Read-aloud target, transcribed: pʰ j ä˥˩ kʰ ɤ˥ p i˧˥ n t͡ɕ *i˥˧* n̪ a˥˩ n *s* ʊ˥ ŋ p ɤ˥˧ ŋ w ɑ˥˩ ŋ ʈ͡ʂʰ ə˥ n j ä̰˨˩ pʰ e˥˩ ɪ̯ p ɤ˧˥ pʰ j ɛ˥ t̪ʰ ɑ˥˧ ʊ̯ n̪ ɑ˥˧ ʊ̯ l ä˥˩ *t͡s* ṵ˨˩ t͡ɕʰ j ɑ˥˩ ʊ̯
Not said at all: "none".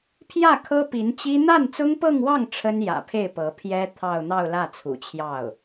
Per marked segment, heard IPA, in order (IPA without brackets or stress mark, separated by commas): i˥, t͡s, t͡sʰ